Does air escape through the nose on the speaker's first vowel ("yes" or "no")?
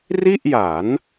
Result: no